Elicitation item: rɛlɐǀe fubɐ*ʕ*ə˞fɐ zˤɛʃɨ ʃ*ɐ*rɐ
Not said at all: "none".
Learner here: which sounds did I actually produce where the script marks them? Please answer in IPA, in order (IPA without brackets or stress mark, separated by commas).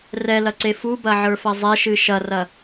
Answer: ʕ, ɐ